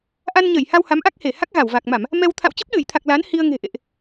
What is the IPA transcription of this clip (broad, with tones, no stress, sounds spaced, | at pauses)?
ʔ a˧ n ɲ ə˧˩ j h a˧ w h a˨˦ m ʔ a˦˥ k̚ h e˧˩ h a˦˥ k̚ ɣ a˧˩ w v a˨˩ k̚ m a˧˩˨ m | m ɛ˧ w t̪ʰ a̰˧˨ w t͡ɕ ə˦˥ p̚ ɗ ɨ˧˩ j t̪ʰ a˨˩ k̚ l a˨˦ n h i˧ ə̯ ŋ e̤˨˩ ʔ ḛ˧˨ ʔ